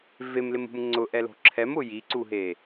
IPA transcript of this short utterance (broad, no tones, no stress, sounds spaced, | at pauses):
v e m l ɪ m ṳ m ŋ͡ǀ ʊ ʔ ɛ l o̤ ǁʰ ɛ m ʊ j i ǀ u ɦ e